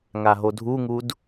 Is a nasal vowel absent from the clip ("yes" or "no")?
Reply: yes